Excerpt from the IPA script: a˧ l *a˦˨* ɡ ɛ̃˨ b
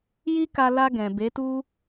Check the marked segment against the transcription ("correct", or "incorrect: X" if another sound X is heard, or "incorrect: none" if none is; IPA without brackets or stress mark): incorrect: a˧